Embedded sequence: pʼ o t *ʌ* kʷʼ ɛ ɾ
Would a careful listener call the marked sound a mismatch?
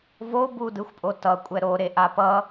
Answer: no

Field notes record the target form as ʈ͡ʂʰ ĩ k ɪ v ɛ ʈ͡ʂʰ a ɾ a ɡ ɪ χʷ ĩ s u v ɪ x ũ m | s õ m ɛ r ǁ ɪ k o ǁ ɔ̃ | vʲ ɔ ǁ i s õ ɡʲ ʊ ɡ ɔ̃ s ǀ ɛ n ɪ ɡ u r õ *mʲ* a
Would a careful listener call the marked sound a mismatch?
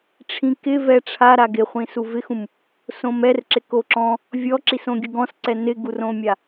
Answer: no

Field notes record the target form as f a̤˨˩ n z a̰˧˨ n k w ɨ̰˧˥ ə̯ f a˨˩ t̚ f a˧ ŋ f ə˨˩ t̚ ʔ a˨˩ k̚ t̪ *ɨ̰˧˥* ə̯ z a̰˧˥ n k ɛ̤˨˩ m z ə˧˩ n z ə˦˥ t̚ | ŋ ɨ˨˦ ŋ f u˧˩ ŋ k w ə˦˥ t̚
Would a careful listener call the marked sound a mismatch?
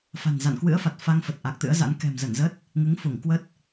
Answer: no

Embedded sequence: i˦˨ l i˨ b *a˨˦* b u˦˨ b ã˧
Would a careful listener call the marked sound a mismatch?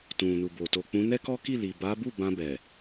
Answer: no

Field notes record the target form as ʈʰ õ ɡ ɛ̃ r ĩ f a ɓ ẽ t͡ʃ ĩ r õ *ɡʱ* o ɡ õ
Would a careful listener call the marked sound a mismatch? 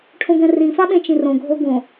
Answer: no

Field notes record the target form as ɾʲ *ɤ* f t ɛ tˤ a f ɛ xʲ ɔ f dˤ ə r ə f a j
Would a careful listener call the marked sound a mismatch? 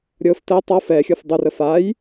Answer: no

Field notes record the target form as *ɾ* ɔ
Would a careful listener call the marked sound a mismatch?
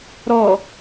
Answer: no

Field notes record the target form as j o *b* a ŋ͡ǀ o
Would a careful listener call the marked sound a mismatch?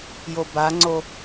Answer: no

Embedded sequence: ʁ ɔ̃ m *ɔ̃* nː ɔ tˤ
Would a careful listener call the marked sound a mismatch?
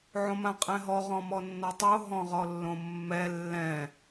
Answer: yes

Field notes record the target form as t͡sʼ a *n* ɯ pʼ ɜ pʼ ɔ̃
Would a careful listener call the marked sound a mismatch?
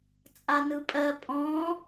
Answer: no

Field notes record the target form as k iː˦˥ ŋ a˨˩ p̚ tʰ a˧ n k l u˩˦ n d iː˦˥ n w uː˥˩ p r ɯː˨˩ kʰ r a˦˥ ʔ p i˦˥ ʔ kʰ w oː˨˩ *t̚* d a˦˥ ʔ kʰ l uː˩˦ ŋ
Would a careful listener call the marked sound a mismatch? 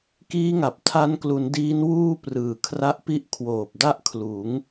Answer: yes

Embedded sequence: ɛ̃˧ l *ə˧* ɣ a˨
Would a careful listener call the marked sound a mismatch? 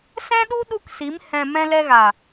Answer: yes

